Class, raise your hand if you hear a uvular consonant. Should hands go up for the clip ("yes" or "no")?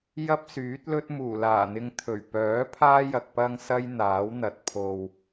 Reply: no